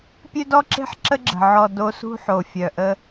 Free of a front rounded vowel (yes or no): no